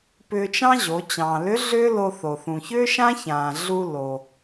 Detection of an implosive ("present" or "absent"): absent